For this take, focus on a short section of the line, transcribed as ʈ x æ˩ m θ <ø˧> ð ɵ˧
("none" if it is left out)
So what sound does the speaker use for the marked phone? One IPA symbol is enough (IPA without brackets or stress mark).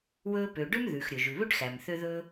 ø˧